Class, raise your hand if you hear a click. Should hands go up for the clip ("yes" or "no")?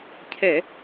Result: no